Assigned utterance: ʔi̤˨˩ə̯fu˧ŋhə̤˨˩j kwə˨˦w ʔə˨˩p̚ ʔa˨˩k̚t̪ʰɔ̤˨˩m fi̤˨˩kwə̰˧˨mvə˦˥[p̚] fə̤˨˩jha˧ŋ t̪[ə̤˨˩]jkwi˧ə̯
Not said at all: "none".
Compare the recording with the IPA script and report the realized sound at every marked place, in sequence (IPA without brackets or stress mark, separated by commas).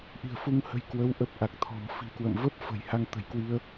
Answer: p̚, ə̤˨˩